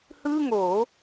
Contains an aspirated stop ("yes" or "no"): no